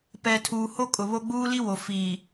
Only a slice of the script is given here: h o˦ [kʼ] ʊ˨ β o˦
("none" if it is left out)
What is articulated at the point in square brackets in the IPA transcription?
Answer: kʼ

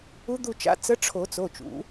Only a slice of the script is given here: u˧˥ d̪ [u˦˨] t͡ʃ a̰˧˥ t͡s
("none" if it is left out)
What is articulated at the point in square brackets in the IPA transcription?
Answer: u˦˨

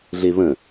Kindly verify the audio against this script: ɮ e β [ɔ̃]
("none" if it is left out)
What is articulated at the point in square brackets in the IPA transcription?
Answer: ə̃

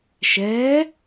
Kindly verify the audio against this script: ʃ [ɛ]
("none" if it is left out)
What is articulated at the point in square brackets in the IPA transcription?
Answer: ɛ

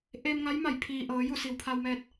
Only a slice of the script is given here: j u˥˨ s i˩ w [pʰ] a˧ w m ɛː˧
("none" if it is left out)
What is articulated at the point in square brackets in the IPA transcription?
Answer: pʰ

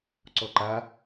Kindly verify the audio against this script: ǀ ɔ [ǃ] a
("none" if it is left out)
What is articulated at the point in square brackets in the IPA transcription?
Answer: ǃ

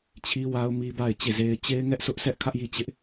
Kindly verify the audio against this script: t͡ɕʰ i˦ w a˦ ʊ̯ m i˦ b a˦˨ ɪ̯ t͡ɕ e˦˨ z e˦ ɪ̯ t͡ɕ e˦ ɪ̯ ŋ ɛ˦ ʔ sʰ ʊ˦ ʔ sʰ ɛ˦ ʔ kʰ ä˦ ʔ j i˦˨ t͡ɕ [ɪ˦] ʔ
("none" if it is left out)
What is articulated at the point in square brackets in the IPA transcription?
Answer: ɪ˦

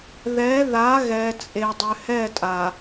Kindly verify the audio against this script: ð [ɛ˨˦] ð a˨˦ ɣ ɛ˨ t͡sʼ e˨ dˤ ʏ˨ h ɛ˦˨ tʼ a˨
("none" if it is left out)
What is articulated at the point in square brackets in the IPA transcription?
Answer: ɛ˨˦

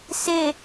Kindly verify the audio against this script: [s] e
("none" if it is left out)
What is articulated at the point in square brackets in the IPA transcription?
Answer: s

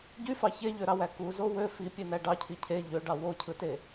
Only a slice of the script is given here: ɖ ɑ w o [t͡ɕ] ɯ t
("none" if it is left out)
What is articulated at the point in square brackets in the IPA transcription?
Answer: cʰ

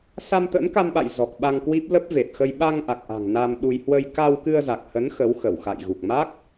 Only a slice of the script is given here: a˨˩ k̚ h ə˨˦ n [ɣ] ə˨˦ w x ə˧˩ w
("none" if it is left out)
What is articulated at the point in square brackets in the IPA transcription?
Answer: x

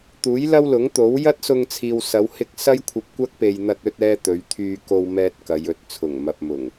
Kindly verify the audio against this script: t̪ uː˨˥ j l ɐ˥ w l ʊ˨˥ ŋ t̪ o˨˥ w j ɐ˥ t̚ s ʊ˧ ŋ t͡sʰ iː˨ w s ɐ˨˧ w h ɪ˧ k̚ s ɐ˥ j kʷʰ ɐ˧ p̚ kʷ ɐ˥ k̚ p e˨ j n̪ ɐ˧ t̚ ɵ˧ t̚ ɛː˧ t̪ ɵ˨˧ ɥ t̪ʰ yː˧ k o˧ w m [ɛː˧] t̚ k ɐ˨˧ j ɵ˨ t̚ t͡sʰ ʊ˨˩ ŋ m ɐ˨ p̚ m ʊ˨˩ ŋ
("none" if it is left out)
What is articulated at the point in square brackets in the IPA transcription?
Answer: ɛː˧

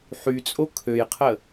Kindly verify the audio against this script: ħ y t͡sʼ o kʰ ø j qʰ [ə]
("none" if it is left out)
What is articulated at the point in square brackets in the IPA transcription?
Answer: ə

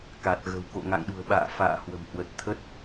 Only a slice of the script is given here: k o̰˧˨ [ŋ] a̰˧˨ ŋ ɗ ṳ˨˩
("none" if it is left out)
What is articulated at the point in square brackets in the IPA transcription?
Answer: ŋ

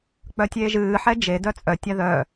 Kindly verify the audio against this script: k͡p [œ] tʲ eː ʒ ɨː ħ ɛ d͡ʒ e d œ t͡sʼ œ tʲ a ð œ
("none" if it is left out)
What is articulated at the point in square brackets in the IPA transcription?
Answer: œ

